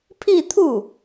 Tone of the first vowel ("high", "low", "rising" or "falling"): falling